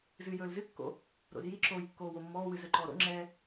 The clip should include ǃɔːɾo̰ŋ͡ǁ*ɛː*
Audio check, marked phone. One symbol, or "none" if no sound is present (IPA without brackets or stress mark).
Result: ɛː